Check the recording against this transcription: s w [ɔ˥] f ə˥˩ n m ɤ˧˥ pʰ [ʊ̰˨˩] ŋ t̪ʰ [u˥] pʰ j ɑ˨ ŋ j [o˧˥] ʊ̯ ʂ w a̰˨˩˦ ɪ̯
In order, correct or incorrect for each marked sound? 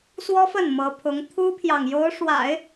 correct, incorrect: ʊ˧˥, correct, correct

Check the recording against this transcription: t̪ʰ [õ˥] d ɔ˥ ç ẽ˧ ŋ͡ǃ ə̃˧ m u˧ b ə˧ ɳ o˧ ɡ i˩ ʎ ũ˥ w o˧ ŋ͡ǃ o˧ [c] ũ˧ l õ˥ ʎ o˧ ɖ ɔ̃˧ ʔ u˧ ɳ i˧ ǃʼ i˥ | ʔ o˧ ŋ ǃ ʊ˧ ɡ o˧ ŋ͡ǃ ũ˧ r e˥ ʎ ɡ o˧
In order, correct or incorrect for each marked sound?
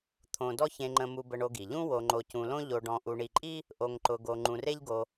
incorrect: õ˧, correct

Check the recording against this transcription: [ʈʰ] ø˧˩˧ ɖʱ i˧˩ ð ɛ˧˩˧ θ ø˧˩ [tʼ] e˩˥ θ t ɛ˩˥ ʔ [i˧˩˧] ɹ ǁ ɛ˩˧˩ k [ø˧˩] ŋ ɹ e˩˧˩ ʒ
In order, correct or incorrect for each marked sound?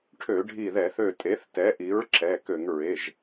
correct, correct, incorrect: i˩˥, incorrect: ø˧˩˧

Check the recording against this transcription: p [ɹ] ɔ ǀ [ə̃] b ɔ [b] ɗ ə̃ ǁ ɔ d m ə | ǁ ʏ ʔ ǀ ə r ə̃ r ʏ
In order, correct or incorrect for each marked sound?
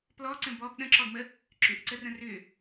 incorrect: l, correct, correct

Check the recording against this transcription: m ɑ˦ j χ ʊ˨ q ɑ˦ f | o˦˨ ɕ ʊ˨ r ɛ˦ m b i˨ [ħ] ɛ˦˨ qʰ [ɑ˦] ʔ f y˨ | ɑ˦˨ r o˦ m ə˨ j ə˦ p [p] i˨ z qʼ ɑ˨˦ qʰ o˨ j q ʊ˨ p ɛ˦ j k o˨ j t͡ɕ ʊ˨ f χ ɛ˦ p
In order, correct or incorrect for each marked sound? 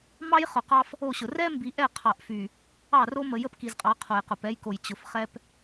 incorrect: ʔ, incorrect: ɑ˨, incorrect: k

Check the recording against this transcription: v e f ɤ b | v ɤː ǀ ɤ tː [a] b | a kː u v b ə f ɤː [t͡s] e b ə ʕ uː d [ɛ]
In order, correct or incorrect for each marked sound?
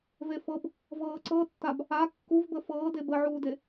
correct, incorrect: d, incorrect: e

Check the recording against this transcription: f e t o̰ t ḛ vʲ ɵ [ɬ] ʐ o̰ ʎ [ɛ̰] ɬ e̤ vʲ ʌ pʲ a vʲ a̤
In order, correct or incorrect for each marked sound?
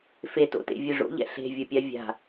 incorrect: none, correct

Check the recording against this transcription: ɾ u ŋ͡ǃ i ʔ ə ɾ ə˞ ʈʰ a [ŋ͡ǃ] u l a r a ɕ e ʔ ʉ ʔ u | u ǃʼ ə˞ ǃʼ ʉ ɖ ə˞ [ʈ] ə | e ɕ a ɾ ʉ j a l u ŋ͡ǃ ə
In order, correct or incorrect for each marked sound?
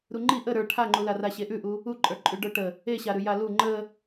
correct, correct

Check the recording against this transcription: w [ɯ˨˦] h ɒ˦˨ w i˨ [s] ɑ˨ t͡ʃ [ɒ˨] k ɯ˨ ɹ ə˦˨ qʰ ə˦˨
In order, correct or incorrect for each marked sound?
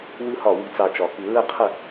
incorrect: ɯ˦, incorrect: t͡s, correct

